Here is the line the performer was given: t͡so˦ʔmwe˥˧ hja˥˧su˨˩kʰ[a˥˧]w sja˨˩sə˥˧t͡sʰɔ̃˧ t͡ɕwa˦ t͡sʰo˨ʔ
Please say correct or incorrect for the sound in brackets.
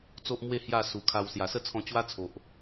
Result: incorrect